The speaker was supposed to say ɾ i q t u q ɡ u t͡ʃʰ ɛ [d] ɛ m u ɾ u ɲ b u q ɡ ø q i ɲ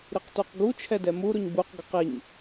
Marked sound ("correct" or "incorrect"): correct